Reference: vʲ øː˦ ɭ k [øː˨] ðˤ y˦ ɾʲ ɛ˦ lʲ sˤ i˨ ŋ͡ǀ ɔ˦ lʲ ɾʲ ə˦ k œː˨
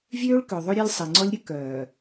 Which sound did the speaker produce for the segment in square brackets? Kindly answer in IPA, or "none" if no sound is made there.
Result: ø˨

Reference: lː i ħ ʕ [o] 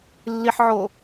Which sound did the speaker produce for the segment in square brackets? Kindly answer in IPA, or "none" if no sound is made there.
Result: o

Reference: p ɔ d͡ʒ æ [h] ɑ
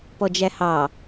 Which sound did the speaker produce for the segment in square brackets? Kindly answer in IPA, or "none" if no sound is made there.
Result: h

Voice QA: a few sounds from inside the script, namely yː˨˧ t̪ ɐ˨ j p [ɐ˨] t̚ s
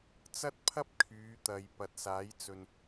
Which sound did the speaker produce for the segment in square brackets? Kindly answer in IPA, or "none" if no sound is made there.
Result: ɐ˨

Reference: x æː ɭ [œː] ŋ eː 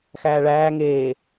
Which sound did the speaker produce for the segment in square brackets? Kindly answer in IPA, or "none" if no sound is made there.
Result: æː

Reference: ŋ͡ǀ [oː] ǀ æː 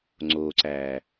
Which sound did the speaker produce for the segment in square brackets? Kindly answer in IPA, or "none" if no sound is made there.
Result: oː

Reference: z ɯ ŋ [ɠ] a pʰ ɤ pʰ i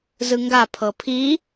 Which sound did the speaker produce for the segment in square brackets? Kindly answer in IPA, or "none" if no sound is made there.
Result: ɡ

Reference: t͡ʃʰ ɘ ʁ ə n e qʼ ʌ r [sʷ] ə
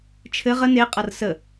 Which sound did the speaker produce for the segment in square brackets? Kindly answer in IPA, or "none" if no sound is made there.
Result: s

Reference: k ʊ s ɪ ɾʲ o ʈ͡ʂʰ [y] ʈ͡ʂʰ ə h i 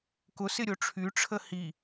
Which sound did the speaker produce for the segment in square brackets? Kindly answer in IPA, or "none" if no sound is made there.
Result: y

